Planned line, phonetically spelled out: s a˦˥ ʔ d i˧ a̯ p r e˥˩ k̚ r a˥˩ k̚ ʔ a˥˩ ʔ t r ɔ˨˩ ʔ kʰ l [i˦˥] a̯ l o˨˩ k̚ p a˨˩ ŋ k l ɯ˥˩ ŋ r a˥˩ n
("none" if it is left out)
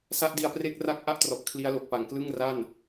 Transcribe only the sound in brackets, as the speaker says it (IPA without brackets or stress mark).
i˦˥